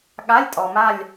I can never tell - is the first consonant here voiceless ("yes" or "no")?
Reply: no